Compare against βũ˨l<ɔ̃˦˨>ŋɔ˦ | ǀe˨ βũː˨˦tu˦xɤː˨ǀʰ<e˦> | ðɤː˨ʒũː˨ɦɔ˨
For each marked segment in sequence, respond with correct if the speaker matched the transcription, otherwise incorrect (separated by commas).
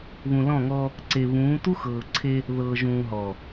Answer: correct, correct